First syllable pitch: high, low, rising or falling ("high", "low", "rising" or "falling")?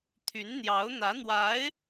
rising